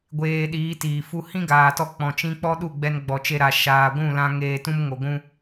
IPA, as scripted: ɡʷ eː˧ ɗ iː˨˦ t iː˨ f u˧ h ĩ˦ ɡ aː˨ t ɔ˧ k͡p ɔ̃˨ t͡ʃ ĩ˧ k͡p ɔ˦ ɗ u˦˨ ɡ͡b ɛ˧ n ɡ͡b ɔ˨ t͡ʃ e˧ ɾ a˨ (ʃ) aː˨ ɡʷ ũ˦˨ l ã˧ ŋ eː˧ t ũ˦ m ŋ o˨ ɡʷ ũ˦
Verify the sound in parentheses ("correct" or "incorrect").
correct